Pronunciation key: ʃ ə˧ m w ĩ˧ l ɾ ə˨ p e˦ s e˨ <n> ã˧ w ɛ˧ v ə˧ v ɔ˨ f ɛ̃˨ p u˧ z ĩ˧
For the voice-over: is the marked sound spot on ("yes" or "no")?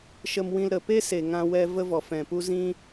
no